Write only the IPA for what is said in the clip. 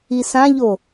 i s ã ʎ o

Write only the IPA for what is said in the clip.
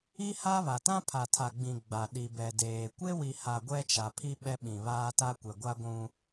i˦ h a˦ β a˨ t ã˦ pʰ a˨ tʰ a˨ ɡ͡b ĩ˨ ɡ͡b a˨ ɗ i˨ b ɛ˨ d eː˨ kʷ e˦ w i˨ h a˨ ɡʷ ɛ˦ t͡ʃ a˨ pʰ i˦ ɓ ɛ˦ ɓ ĩ˨ β aː˦ t a˦ kʷ ɛ˨ ɡʷ a˦ ɡʷ ũ˦

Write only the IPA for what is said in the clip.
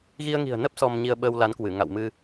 ɣ i˧ ə̯ ŋ i̤˨˩ ə̯ n ə˦˥ p̚ s ɔ˧ m ɲ i˧ ə̯ ɓ əː˧ w l a˨˦ n k w ɨ˧˩ ŋ a̰˧˨ w m ɨ˧

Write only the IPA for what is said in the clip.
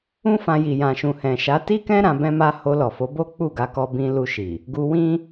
ũ˦ f ã˧ j i˨ j ã˨ ʃ ũ˨ h ɛ̃˨ ʃ a˨˦ t i˦ k ɛ̃˦ ɾ ã˧ b ɛ̃˦ m a˦ h o˧ l ɔ˨ f o˨˦ b o˦ k͡p u˦˨ ɡ a˧ k ɔ˧ b ĩ˧ l u˧ ʃ i˨ | ɡ u˧ w ĩ˦

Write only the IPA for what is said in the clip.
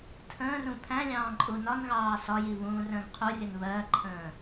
tʰ ə̃ː r ũ pʰ æ̃ lʲ ɑ̃ː ǃʼ u n ɒ n ɣ ɑː s ɒ j i β ũː r ə̃ː ɡ qʰ u rʲ ə n β ɜ ǃʰ ə̃ː

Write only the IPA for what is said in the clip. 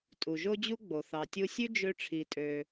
tʼ u˩ ʒ o˥ d͡ʑ u˥ ɡ͡b o˩ θ ɑ˩ tʲ u˧ sʲ ʉ˥ d͡ʒ ø˧ ʈ͡ʂʰ i˩ tʼ ø˩

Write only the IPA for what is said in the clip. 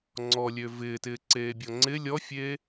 ŋ͡ǀ ɔ lʲ ø v ɪː t ɪː ǀ eː bʲ ɔ ŋ͡ǀ ɪ lʲ ɔ fʲ eː

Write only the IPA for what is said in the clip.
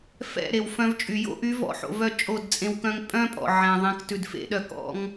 f ɛ̰˦˨ ɾ e˨ w f œ̃˧ v t͡ʃʼ y˨ j o̰˦ ʔ y˨˦ v ɔ̰˧ ħ o̰˨ v œ˦˨ t͡ʃʼ o˦˨ d t͡sʼ ẽ˧ w k œ̃˦ ŋ pʼ œ̃˦ pʼ ɔ̰˨ ʕ ɛ̃˨ ðˤ ẽ˨˦ k t ʉ˨ d f ḛ˦ ɗ œ˧ k ɔ̰˦ ŋ

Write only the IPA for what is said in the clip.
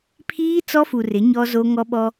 pʰ iː˦ t͡s ɔ˦ f u˨ r ɪ˨˦ ɲ ɔ˦ z o˦ ŋ ɔ˦ ɓ ɔ˦

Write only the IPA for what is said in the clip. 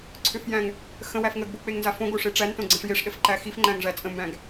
ǀʰ ʏ f j æ̃ ŋ | x ə̃ w æ f ŋ ə ɡ b o k͡p e ŋ n z a f õ ɡ o ʂ e ʈ͡ʂ æ n t õ ɡ͡ǀ ə̃ ʂ j e ʂ ɗ ə f ǃ æ x i f ŋ͡ǃ æ̃ ŋ ʐ æ t͡sʼ ə̃ m b æ̃ ɡ

